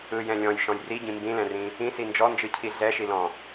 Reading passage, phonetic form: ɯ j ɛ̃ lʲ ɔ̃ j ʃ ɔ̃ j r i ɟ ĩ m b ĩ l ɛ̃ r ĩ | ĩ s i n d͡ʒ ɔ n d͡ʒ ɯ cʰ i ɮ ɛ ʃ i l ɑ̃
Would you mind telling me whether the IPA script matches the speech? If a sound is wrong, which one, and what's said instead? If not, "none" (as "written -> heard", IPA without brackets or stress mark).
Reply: ɑ̃ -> ɔ̃